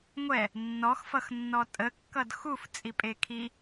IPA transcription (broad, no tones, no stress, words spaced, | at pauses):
ŋʷɛ | nːɔxfʌxnːɔ tʼəkːʌd xuft͡sʼipʼe kʰi